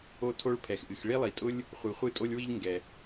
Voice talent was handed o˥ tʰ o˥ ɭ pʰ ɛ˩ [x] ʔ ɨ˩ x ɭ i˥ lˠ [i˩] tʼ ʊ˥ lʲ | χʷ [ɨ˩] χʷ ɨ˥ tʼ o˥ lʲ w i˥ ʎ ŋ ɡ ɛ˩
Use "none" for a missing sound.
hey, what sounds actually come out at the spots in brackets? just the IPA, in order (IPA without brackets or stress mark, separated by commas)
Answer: x, i˩, ɨ˩